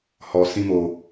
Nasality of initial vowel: oral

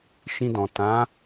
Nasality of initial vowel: nasal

